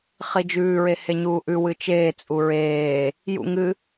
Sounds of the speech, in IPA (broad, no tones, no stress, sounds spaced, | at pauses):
χ i d͡ʒ ʉː ɹ e h e ɲ uː ʔ ʉ w ɨ t͡ʃ eː t͡sʼ u ɹ eː | j ṵ ŋ ɨ